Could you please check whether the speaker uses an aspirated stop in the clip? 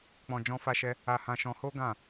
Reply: no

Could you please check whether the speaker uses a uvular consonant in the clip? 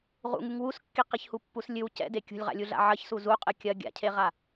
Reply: yes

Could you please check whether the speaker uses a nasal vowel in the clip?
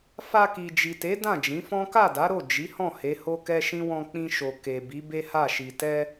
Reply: yes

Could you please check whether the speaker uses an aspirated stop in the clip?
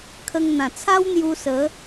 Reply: yes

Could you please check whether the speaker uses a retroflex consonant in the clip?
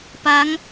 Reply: no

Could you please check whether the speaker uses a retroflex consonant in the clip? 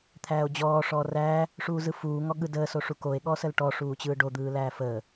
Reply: yes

